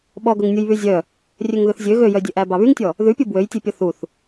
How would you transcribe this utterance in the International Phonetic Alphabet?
ɓɔɡɵŋnʲuj βyzʲœ | rʲøŋðɵθzʲø ɣøjœdʲøʔæ bɑβyŋtʲɔ | ðʉpʲu bwøjtʲepʲɔ θuθ

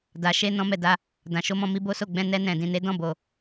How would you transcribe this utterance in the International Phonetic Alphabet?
da˨ʃe˧ nɔ̃˦mɛ˦˨da˧ | dã˨ʃo˧mɔ̃˧ mi˧bo˦so˦˨ɡ͡bɛ̃˧ nɛ˧nɛ̃˨dĩ˨ne˨˦ dɔ̃˦˨bo˨

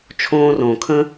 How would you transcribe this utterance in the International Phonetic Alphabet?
t͡ʃʰõː˥ rõː˩kʰə̃˥

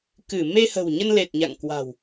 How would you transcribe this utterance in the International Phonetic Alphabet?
kɨ˧˩ me˧hə̤˨˩wɲə˧nle˨˩t̚ ɲa̰˧˨ŋkwa̤˨˩w

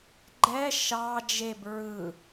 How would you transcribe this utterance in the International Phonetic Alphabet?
ɡ͡ǃɛ ʃɑ d͡ʒeb ɹɯ

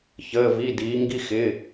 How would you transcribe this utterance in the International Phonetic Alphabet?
çəː˩˧˩vi˩˧˩ diː˩˧ ŋɡi˧xɪː˩˧˩

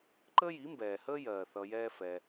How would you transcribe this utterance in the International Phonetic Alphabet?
ǃəː˦ji˨˦mbɛː˨ həː˦jɜː˨ θʌ˧jɛː˦fɛː˧

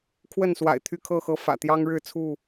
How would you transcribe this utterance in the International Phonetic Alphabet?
kʰwə˥˨nswa̰˨˩ɪ̯t̪ʰy˥˨ kʰɤ˥˨xɤ˥˨ fä̰˨˩t̪jɑ˦ŋɻɻ̩˥˨ t͡sʰu˥˨

